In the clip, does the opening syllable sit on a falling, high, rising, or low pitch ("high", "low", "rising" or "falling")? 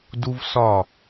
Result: high